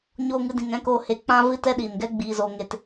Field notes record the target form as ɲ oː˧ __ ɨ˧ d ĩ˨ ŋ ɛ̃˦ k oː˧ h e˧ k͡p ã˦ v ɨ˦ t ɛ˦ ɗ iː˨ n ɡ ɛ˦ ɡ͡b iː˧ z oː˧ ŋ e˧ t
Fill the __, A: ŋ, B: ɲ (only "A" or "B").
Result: A